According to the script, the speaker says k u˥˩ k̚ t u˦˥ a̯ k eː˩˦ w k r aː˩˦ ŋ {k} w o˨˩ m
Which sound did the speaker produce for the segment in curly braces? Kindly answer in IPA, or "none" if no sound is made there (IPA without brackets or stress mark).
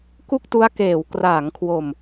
kʰ